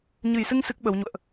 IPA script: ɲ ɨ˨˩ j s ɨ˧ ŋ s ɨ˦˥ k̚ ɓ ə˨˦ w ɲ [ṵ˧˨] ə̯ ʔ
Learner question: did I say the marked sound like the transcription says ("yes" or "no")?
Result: yes